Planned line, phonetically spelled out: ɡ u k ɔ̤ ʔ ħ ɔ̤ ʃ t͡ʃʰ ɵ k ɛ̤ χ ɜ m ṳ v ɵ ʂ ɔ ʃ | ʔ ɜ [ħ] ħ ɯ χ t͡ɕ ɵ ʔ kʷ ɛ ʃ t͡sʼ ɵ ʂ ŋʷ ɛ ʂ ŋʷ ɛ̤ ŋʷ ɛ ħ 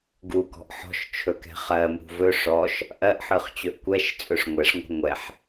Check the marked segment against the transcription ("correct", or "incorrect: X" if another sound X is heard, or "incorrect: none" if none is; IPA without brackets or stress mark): incorrect: ʔ